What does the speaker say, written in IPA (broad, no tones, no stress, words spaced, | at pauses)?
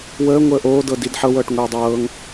wəː ŋʷəːʔoːdɤ didħɤwɤːʈ ŋʷiːdˤɤːŋ